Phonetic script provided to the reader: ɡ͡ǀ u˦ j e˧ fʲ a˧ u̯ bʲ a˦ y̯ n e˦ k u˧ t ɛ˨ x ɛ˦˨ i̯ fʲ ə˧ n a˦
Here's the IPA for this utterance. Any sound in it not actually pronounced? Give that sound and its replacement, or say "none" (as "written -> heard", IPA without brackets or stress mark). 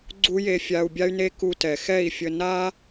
none